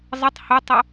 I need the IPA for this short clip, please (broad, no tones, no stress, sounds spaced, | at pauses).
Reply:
zˤ ə tˤ h ɵ tˤ ɵ